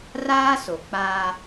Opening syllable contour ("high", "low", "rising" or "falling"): high